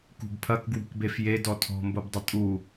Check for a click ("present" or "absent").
absent